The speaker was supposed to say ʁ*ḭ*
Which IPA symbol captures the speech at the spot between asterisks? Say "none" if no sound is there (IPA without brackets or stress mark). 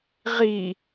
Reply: i